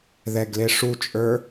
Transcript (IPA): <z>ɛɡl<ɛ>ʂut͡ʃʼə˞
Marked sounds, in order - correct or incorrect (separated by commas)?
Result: incorrect, incorrect